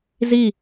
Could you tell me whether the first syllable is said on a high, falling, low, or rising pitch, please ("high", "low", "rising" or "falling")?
falling